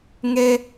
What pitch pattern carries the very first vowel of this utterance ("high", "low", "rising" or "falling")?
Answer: high